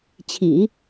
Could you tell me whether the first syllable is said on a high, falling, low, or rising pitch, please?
low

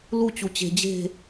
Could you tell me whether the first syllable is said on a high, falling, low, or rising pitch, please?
falling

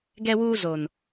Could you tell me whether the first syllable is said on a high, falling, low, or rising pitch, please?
high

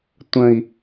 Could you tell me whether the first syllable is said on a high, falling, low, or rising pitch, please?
low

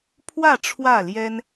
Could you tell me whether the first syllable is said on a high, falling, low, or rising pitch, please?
falling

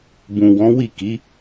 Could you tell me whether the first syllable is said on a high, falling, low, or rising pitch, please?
low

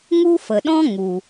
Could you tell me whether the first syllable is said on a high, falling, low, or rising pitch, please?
high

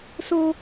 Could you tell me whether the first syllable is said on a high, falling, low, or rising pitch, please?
high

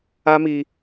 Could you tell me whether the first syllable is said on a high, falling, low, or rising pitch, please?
high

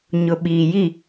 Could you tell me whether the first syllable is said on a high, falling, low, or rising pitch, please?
low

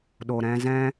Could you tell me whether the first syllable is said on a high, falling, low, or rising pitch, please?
low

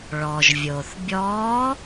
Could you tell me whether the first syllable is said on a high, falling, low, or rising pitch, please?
low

